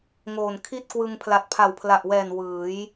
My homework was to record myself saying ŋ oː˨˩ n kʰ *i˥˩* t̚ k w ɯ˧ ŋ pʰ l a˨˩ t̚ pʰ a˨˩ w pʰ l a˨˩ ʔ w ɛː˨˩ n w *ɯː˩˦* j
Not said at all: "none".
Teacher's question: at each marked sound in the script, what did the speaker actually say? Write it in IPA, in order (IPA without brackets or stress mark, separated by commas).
i˥˩, ɯː˩˦